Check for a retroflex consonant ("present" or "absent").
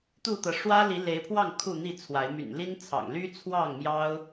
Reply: present